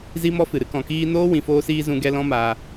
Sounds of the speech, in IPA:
zi˦mɔ˦fɨ˨ɾɨ˦ kɔ̃˨kiː˧ noː˦ wĩ˨foː˧siː˧ zũ˧ɡɛ˧ lɔ̃˦maː˧

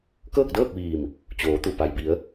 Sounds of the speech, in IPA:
kɤː˥˨k̚dɤː˥˨k̚ ʋiː˧˩m | t͡ɕoː˩˧t̪u˧˩ pa˩jbi˩˧ə̯

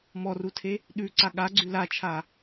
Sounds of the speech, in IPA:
mɔrutʰe | ɗʉǀa ɠaɡ͡ǀʉ lat͡ʃʰa

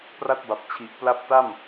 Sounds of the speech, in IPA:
pra˥˩t̚ba˨˩p̚t͡ɕʰi˨˩ʔpla˥˩p̚ ta˥˩m

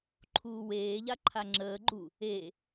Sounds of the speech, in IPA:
ǃʰuːweːʎa ǃʰaŋ͡ǁəːɡ͡ǃu | e

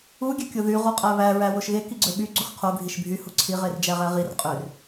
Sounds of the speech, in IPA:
u ɡʲøkʲoðy ʁoqʼæβæ ɹæwoʃɣe kiɡ͡ǀøɓy ɡ͡ǀuxqʰo ɡʱiʃbʱy huǀʰi ʁerd͡ʒæʁæʁir qʼør

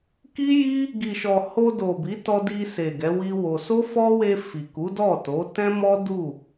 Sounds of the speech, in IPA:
ki˦ji˦ | ɡi˨ʃɔ˨ ho˧do˨ bi˨˦tɔ˧di˧ se˨ ɡɛ˨˦wi˦wo˧ so˦fɔ˦we˧ fi˨ ku˨˦dɔ˦˨to˨˦ tɛ̃˦mɔ˦ du˦˨

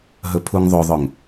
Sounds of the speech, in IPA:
ɦɵpʰuŋðˤoðˤɵŋ

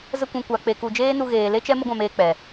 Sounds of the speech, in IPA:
zə˧kʷũ˨ kʷa˨ k͡pe˨ku˨d͡ʒeː˦nu˧ ɣeː˨le˦t͡ʃɛ˦ mə˦ɡʷã˧meː˧ k͡pɛ˨

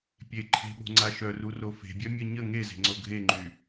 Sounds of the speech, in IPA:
pʲe ǃʰe̤ɓo̤ŋ͡ǀa ʃœruro fe̤bʲœ mʲə ɲə ŋeze̤ŋ͡ǀo ɡʱeŋ͡ǃy

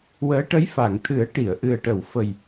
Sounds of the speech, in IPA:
wəː˧˥ʈə˧˥j fa˨˩˨ŋ t̪ʰɨ˨˩˦ə̯ ʈi˨˩˨ə̯ ʔɨ˨˩ə̯ʈə˨˩˨wfə˨˩j

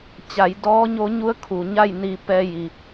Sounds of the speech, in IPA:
t͡ɕa˩˧jdɔː˧˥ɲo˧˥ ɲu˧˥ə̯kʰu˩ɲa˥˨j ni˧ pɛː˧ji˩

